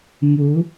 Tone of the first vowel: rising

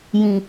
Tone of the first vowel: low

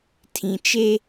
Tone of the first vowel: low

